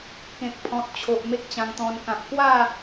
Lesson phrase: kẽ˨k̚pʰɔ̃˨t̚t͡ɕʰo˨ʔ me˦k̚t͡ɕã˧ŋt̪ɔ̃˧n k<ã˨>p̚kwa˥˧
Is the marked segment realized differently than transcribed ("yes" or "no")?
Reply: no